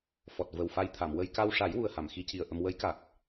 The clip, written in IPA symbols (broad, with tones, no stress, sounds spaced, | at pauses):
f ɔ˨˩ t̚ v ə˨˩ w f a˧ j t̪ʰ a˨˩˨ m w ə˧ j k a˧ w ʂ a˨˩˦ j w u˨˩ ə̯ h a˨˩˨ m x i˧ c i˨˩ ə̯ ʔ ə˧ m w ə˧˥ j k a˨˩ k̚